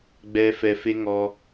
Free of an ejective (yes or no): yes